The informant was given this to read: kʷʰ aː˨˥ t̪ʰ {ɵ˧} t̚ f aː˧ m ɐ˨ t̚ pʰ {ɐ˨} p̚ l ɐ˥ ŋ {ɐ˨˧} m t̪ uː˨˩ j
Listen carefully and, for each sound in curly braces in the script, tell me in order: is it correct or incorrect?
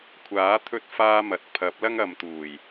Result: correct, incorrect: ɐ˨˥, correct

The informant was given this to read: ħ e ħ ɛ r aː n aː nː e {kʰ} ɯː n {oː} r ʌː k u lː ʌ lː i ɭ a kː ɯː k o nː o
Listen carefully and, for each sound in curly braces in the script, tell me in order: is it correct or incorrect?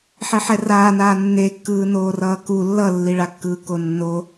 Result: incorrect: kː, correct

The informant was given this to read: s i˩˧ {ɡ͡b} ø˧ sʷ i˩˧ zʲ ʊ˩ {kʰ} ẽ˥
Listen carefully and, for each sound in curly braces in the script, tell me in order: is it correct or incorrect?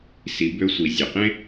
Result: incorrect: b, incorrect: q

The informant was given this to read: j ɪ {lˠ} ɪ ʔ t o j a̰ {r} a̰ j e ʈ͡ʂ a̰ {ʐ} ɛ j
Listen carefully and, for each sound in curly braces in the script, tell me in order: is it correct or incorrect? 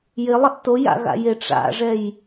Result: correct, incorrect: ɣ, correct

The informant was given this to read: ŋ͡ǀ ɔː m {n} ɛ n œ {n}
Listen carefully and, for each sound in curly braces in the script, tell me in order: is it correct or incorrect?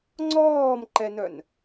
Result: incorrect: ǃ, correct

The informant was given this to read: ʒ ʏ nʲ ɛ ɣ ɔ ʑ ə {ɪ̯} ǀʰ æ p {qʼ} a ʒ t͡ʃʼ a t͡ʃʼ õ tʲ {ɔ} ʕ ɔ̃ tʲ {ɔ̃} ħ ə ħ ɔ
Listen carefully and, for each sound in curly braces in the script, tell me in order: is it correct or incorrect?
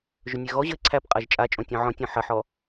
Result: correct, correct, incorrect: ɔ̃, correct

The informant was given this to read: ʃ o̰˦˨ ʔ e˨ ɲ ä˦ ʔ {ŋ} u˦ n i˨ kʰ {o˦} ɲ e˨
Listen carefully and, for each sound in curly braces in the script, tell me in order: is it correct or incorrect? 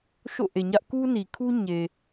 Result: incorrect: k, incorrect: u˦

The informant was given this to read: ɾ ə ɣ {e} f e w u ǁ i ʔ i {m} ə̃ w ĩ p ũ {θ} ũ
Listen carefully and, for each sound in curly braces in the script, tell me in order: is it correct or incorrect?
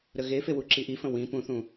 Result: correct, incorrect: f, correct

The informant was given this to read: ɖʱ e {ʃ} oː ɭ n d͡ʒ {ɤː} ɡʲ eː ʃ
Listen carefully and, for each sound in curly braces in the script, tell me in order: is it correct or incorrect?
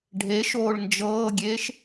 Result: correct, correct

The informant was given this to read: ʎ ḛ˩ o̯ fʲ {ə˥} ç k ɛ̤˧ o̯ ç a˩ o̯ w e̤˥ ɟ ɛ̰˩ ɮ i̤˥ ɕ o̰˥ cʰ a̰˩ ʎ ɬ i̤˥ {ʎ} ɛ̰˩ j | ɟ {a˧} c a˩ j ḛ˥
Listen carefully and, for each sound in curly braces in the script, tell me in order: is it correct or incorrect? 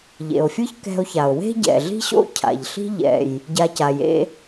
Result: incorrect: ɯ˥, correct, correct

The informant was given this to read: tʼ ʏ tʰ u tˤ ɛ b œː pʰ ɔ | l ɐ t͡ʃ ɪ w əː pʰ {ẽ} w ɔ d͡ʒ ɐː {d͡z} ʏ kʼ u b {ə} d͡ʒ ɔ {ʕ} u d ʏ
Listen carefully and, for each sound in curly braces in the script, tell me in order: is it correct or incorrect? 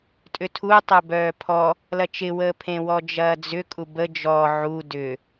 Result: correct, correct, correct, correct

